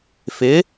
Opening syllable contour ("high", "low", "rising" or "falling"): rising